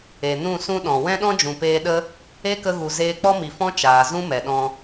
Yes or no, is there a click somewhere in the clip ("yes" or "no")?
no